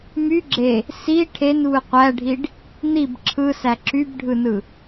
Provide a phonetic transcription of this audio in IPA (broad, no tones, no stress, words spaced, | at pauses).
my ɡ͡ǁe | si ʈʰenβɯ qʷæɖʱiɖ | n̪ib ǁʰɯsæ ǁybɖʱɯnɯ